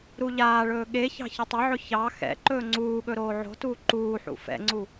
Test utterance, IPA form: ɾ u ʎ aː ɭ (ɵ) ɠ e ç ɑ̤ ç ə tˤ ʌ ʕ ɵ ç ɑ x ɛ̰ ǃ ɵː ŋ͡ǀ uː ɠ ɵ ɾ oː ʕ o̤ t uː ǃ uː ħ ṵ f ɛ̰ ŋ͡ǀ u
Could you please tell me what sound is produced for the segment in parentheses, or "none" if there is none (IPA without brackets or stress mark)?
ɵː